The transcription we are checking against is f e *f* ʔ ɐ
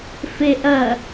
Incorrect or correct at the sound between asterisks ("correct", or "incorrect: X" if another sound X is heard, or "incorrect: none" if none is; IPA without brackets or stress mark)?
incorrect: none